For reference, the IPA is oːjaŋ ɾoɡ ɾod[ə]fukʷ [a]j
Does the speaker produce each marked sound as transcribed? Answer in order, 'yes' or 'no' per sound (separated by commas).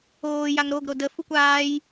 yes, no